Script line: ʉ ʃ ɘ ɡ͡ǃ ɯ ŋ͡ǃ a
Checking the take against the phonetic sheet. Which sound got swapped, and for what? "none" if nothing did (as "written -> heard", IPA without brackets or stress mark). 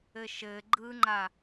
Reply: ʉ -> ɘ